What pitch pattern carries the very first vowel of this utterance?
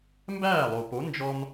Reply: falling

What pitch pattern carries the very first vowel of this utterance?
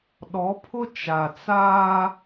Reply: rising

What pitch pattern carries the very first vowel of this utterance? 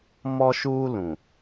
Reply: high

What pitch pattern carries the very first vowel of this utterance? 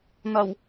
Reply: low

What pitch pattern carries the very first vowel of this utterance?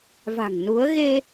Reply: low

